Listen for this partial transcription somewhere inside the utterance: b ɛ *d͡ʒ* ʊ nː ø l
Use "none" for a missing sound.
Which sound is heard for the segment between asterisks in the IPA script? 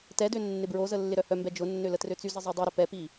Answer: d͡ʒ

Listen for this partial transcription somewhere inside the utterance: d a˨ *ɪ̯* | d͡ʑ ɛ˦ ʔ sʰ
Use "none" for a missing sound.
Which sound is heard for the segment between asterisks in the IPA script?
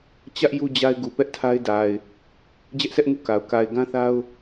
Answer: ɪ̯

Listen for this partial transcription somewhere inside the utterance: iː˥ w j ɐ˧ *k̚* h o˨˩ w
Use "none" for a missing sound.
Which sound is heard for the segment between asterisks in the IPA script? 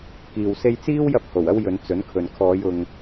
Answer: p̚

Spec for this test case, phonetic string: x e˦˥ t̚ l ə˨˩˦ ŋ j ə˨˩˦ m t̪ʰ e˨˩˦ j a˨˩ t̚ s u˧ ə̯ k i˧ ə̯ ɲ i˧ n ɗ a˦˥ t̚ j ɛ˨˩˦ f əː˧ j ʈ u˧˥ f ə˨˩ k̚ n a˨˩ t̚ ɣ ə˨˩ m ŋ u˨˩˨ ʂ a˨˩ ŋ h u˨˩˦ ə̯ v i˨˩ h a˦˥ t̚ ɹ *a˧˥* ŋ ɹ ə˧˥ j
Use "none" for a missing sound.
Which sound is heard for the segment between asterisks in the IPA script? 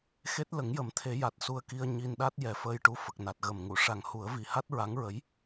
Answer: a˧˥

